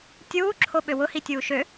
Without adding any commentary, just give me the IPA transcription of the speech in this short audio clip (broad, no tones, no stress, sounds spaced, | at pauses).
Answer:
tʲ uː ǁʰ o ɓ ø w ʊ h i tʲ uː ʃ ø